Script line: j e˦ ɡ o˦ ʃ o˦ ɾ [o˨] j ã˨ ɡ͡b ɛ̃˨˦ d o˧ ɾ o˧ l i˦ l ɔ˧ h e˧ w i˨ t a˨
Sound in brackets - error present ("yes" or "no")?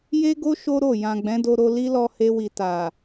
yes